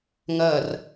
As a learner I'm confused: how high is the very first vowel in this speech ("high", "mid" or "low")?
low